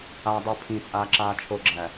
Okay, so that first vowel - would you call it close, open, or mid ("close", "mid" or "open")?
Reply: open